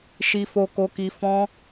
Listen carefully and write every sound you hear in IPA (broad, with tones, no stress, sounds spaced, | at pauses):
ʃ i˨ f o˨ k o˨ k i˨ f ɔ̃˧